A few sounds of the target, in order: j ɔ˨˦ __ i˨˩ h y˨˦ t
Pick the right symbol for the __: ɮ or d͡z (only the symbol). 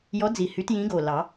d͡z